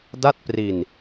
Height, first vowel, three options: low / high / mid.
low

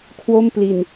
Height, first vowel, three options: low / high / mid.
mid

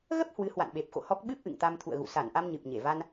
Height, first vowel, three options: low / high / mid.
mid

